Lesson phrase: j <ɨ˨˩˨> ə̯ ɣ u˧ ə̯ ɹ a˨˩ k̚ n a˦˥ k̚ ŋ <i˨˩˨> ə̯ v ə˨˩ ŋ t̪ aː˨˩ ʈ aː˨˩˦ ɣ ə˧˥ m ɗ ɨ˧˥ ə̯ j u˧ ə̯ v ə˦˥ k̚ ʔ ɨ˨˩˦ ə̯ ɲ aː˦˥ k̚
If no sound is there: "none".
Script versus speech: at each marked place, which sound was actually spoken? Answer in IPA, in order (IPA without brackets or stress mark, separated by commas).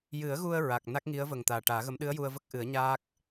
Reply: ɨ˨˩˦, i˧˥